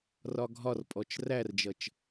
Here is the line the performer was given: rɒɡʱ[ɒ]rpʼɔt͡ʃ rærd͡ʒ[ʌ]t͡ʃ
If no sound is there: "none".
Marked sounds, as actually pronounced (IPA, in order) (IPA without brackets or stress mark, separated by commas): ɒ, ʌ